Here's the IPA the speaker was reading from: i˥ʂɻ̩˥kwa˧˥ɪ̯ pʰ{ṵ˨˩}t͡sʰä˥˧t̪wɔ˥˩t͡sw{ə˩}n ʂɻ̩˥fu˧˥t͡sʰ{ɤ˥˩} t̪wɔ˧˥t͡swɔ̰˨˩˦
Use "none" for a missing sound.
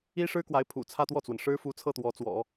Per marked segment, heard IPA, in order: ṵ˨˩, ə˩, ɤ˥˩

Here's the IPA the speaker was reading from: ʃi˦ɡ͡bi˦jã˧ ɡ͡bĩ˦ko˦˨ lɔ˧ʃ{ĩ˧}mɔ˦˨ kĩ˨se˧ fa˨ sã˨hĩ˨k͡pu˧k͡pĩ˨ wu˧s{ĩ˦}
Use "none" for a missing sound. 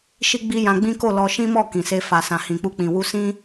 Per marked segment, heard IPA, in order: ĩ˦, ĩ˦

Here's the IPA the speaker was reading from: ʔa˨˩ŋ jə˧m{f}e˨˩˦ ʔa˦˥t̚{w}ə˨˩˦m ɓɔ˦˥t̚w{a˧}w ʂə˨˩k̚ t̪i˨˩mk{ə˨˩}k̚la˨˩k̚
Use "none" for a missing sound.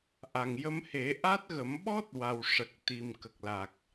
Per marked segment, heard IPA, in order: h, ɣ, a˨˩, ə˨˩

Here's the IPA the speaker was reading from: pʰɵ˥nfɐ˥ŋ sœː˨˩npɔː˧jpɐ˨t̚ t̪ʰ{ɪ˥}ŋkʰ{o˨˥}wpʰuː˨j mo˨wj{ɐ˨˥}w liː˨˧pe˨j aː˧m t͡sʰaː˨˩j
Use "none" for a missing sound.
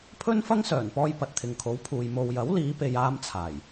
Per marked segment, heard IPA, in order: ɪ˨, o˨˥, ɐ˨˥

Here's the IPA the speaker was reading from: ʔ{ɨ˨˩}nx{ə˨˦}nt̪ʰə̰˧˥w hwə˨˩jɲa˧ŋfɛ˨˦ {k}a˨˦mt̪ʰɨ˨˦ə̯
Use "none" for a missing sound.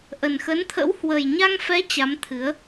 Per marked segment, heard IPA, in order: ə˨˩, ə˨˦, t͡ɕ

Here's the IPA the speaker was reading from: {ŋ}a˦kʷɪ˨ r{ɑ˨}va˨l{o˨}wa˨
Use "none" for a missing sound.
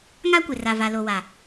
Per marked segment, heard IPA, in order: ŋ, a˨, o˨

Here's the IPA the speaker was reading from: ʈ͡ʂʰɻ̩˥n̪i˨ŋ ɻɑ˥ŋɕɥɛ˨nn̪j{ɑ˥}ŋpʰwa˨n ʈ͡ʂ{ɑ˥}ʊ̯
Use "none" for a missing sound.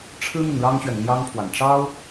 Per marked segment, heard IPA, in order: ɑ˥, ɑ˥

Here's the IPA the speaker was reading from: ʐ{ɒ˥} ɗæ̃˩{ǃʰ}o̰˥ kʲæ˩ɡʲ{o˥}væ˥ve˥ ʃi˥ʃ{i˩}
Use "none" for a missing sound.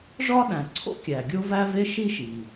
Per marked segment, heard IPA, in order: ɒ˥, ǀʰ, o˥, i˩

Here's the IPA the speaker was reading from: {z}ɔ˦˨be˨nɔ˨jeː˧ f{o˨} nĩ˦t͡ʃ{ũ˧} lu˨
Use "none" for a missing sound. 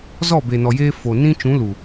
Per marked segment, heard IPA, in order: z, o˨, ũ˨˦

